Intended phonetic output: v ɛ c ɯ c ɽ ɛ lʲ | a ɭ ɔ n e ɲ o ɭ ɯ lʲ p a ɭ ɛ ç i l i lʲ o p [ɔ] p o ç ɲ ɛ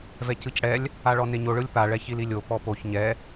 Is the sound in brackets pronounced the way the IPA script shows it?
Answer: yes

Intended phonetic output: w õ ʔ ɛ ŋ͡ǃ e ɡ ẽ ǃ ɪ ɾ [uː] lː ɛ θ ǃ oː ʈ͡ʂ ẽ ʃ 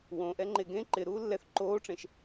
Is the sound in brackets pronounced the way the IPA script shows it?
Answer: yes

